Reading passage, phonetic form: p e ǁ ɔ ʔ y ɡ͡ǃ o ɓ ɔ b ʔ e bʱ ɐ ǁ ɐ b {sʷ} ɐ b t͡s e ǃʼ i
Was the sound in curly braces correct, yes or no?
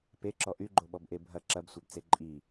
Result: yes